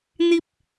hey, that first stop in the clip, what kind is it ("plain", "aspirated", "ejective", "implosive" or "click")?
plain